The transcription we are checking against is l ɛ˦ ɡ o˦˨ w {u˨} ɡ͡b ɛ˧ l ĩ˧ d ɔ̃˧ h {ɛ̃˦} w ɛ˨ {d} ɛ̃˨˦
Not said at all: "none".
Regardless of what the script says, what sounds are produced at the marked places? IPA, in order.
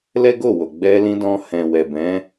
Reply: o˨, ɛ̃˨, b

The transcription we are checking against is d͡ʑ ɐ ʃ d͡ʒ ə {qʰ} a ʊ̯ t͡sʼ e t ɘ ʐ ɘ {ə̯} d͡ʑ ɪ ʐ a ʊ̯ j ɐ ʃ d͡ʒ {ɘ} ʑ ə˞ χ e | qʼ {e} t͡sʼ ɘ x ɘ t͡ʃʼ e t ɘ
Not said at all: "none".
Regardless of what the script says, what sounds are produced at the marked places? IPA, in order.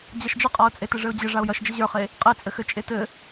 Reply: qʼ, ʊ̯, ɘ, e

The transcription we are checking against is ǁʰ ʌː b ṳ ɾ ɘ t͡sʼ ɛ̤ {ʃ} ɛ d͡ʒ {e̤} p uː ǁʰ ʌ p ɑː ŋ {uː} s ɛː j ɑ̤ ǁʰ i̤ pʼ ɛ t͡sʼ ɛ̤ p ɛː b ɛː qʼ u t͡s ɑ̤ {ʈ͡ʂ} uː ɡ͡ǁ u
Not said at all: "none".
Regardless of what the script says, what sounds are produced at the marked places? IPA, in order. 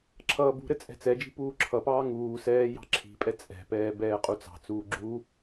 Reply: t͡s, i̤, uː, t͡s

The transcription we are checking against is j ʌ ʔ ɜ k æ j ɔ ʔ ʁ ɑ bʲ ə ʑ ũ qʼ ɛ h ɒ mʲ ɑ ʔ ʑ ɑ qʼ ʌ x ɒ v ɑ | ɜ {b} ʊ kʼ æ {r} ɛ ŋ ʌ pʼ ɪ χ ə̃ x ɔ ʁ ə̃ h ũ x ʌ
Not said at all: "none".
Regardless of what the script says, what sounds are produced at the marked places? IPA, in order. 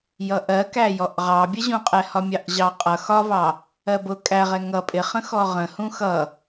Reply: b, ʁ

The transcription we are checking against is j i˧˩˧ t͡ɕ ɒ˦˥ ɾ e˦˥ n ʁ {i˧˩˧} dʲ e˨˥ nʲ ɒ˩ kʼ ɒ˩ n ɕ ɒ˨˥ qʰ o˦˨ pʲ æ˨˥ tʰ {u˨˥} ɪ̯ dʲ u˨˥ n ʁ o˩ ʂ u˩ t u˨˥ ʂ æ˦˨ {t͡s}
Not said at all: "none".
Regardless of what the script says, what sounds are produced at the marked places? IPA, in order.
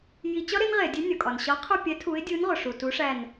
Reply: e˧˩˧, u˨˥, n

